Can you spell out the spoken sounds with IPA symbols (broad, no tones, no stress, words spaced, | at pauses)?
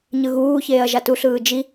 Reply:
ɲɯɣuːçeːɐ̯ ʒatuɬɯː d͡ʒi